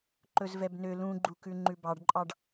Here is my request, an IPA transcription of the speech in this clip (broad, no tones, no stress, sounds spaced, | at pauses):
ǃ ɵ z v ɛ b n ø l ũ ɡ͡ǃ u k ʉ ŋ͡ǃ ʉ b ɑ ɖ ǃʼ ɑ ɖ